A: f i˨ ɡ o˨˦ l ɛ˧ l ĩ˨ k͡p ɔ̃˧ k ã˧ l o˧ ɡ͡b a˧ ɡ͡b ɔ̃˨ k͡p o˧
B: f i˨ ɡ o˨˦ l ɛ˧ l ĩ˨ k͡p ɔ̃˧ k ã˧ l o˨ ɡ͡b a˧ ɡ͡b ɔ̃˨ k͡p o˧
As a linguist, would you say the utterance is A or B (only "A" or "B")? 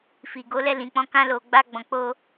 B